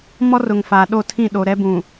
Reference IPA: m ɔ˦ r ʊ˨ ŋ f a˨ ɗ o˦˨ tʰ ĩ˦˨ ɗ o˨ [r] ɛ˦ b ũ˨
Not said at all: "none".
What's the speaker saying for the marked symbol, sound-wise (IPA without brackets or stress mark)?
ɾ